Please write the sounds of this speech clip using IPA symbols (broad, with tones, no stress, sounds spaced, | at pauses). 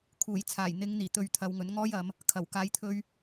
kʰ uː˨˩ j t͡sʰ aː˨˩ j n̪ ɪ˨˧ ŋ n̪ iː˨˩ t̪ ɵ˧ ɥ t̪ʰ ɐ˨˧ w ŋ ɵ˨˥ n ŋ ɔː˥ j ɐ˨˧ m | kʰ ɐ˨˩ w k aː˨˧ j t̪ʰ ɵ˧ ɥ